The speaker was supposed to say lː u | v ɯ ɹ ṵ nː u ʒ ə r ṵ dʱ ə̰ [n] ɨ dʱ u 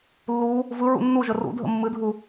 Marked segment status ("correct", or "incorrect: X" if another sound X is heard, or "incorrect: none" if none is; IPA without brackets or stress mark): incorrect: mː